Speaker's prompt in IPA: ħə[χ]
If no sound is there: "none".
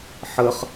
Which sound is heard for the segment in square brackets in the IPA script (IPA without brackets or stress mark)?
χ